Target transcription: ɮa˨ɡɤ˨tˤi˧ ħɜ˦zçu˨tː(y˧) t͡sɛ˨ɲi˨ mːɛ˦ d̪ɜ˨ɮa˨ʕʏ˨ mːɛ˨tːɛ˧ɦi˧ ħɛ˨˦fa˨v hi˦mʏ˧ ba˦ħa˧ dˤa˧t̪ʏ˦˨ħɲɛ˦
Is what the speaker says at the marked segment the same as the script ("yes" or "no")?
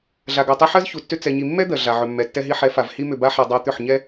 no